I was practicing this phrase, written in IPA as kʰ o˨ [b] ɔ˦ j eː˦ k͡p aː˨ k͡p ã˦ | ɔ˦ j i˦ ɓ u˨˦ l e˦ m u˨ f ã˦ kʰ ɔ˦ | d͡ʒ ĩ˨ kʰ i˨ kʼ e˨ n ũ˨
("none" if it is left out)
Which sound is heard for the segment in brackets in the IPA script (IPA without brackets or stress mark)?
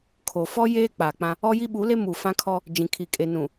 f